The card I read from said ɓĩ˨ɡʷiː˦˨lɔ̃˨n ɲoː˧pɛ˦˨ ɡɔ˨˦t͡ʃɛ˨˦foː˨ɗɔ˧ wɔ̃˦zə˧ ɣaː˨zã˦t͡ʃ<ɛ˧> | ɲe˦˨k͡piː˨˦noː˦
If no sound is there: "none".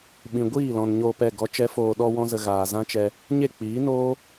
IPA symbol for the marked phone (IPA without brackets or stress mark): ɛ˧